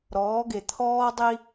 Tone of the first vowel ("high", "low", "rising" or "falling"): rising